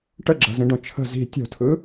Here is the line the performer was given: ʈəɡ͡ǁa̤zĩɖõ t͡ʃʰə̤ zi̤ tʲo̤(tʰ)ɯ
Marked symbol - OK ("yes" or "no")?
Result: yes